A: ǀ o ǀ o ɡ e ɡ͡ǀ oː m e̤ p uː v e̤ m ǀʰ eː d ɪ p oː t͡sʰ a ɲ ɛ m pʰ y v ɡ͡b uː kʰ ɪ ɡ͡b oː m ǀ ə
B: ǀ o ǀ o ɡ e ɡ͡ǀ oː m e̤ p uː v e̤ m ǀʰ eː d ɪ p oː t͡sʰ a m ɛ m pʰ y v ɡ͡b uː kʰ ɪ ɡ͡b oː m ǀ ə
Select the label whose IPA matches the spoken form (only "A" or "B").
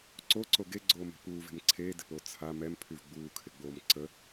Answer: B